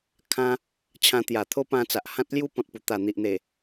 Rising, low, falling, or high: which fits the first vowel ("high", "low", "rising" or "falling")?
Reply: high